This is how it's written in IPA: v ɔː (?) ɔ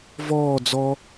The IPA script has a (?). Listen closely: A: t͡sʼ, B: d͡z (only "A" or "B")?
B